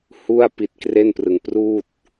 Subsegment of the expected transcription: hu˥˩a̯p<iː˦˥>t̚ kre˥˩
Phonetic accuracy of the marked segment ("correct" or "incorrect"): incorrect